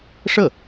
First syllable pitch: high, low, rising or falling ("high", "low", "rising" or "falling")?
falling